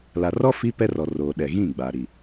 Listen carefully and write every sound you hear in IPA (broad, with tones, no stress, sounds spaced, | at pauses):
l a˨ r ɔ˦ f i˦ p ɛ˦ r ɔ˨ r oː˨ ɗ ɛ˨ ɣ ĩ˦˨ ɡ͡b a˨ ɾ i˨